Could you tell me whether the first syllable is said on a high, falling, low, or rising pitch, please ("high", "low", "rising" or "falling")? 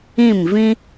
falling